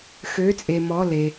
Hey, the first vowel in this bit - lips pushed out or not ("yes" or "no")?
yes